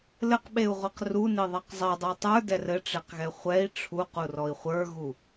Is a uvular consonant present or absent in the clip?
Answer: present